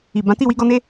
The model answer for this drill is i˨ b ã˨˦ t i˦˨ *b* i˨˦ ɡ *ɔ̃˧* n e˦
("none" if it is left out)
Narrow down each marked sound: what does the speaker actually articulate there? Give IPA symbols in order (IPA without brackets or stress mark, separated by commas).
w, ɔ˧